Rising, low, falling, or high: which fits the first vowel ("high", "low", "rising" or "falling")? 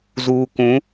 low